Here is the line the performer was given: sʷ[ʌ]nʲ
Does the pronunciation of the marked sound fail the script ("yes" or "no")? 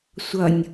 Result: no